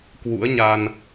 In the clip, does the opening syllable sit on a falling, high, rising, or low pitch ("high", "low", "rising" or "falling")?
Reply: rising